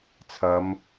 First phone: t͡sʰ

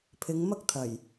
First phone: pʰ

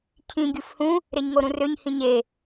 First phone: cʰ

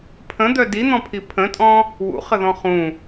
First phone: pʰ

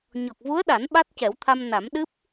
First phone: ɲ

